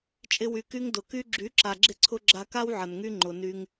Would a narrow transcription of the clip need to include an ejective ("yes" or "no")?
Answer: yes